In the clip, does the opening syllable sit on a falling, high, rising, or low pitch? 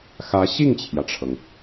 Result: rising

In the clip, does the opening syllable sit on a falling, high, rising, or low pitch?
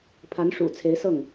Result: rising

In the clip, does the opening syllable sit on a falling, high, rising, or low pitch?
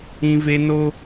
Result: high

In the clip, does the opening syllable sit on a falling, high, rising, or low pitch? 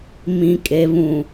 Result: low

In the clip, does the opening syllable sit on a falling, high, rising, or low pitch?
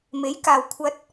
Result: rising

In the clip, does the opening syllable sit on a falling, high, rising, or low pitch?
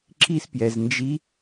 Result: high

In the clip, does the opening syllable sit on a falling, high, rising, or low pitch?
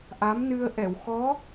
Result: rising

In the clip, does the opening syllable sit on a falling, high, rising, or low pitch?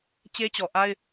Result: high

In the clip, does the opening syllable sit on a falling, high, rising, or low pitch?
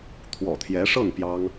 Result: low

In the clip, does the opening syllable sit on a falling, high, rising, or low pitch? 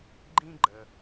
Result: high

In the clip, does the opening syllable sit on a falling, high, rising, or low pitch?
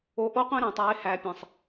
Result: rising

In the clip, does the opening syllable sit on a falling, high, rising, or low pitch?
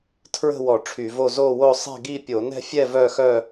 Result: falling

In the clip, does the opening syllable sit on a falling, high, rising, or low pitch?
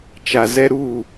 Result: low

